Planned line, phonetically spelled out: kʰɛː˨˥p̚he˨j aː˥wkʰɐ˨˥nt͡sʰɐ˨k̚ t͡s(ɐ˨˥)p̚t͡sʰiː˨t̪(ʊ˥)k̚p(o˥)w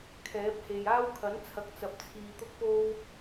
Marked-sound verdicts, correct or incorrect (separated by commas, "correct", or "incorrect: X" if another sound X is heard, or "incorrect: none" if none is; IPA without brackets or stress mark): incorrect: ɐ˨, correct, correct